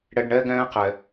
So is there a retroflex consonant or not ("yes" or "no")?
yes